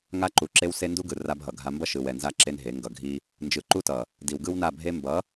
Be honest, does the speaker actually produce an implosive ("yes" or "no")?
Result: no